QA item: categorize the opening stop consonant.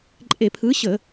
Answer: click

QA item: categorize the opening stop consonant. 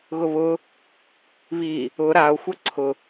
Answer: click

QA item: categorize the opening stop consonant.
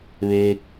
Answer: plain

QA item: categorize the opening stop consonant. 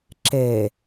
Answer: click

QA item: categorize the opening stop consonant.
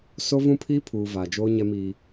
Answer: aspirated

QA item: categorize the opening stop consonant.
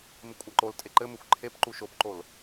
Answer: ejective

